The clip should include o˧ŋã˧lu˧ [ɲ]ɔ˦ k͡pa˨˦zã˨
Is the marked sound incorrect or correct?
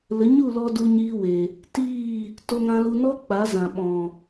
incorrect